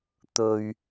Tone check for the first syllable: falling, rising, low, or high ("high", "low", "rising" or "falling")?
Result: low